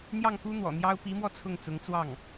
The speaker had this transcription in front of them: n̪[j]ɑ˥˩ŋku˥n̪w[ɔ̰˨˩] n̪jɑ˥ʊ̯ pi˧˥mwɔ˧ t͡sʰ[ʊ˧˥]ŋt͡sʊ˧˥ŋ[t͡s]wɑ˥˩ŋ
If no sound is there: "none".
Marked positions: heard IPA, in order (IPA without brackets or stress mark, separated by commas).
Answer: j, ɔ̰˨˩, ʊ˥˩, t͡s